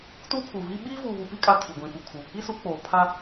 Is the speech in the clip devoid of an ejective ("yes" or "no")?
no